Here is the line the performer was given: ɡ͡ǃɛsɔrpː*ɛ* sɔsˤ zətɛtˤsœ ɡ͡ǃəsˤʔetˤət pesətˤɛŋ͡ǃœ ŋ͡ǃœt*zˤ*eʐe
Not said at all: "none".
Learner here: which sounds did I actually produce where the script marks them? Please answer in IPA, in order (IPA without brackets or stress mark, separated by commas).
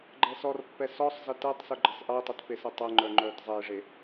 ɛ, zˤ